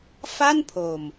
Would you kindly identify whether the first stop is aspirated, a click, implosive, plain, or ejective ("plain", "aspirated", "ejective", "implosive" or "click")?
aspirated